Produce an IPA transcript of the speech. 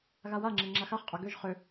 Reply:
ɣ a w a ŋ͡ǁ ɛ ŋ͡ǁ a x a χ qʼ œ ɡ ø ʒ χ ø

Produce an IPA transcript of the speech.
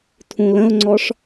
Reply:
tʰ ũ l ə̃ ʊ̯ ŋ͡ǀ ɔ ʂ

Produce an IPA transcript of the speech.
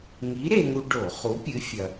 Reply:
ŋ i˨˥ ɾ e˧ ŋ u˧ ɖ o˧˩˧ χ u˨˥ pʲ ɨ˨˥ fʲ ɐ˧

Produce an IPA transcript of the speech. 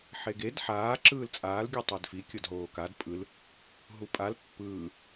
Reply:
ħ e ɡ e d ħ aː ǁ ɯː l t͡sʼ aː l ɡʲ u tˤ e d f i kʲ o d ɦ oː k a d pʼ ɯ l | ɦ u pʼ a l pː ɯː

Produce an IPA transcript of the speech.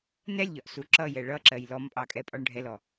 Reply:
n ɛ lʲ ʎ ɒ ʔ s u ǁ ʌ j ɛ ɭ ʌ ǁ ɜ j l ɔ m pʼ ɑ kʼ ɛ pʼ ɒ ɳ ɖʱ ɛ l ɔ

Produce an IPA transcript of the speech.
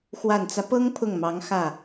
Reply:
x w a˨˩ n t͡s ä˦ p ɤ˥ ŋ pʰ ʊ˥˩ ŋ m ɑ˧˥ ŋ x ä˥˩

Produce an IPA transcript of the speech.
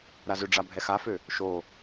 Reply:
ɾ a z ʏ ɖ͡ʐ a bʱ ɛ x a f ø | ʃ o

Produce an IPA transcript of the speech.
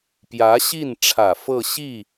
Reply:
p j ä˧˥ ɕ i˥˩ n ʈ͡ʂʰ ä˨˩ f ɤ˥˧ ɕ i˥˩

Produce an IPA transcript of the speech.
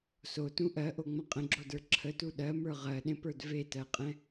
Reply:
s o t ũ ʔ ɜ ʔ o ŋ͡m ə̃ qʼ ə̃ ɡ͡ǁ o d ə˞ ǁʰ ə t u ɗ ɜ m ə˞ ʁ ɜ ɗ ẽ p ə˞ d v e t ɜ qʼ ɛ̃

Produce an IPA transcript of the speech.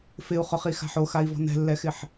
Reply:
f ɪ u̯ χ ʊ χ i x a̤ ħ o x a i̯ v ɔ̤ n ɛ̤ lː ɛ x ɪ ħ

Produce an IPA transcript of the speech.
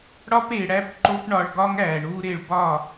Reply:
ɽ ɒ˦ p e˨ ɽ æ˦ p ǃ o˦ p ɳ ɒ˧ ɭ ɡ ɒ˦ ŋ æː˨ ɳ uː˦ ɾ e˦˨ ɭ b ɒː˦˨

